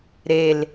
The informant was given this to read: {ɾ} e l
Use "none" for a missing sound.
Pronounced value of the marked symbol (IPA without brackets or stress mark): ɾ